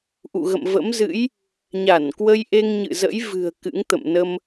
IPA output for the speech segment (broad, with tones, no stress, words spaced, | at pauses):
ʔṵ˧˨ɣə̰˧˨m və̰˧˥mzɨ̰˧˥j | ɲa˧˩n kwə˧jʔe˧ŋ ɲɨ̰˧˨zə̰˧˥jvɨ̤˨˩ə̯ kɨ̰˧˥ŋt̪ə̰˧˨m nə˧m